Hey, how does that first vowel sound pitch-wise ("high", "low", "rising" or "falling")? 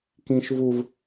high